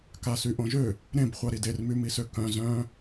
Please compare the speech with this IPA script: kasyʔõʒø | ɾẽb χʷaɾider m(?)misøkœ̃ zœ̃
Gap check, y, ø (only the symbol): y